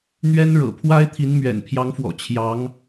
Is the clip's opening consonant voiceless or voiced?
voiced